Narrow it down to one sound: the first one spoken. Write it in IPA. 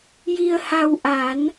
j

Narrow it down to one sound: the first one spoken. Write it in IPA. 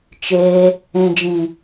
t͡ʃ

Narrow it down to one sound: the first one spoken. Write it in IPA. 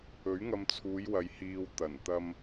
ɵ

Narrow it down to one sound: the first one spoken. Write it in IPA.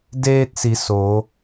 d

